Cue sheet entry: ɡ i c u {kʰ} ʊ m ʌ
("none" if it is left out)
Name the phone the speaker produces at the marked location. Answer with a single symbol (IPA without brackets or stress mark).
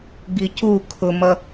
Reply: kʰ